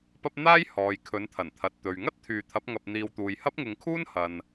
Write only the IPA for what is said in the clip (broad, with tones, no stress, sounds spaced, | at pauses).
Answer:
p ɐ˥ p̚ n̪ aː˥ j h ɔː˨ j kʰ ɵ˨˥ n t̪ʰ ɐ˨˩ n t̪ʰ ɐ˨ t̚ t̪ ɵ˨ ɥ ŋ ɐ˥ t̚ t̪ʰ yː˨ t̪ʰ ɐ˨˥ p̚ ŋ ɐ˧ p̚ n̪ iː˧ w t̪ uː˨ j h ɐ˥ p̚ ŋ ɪ˧ ŋ kʰ uː˥ n h ɐ˨ n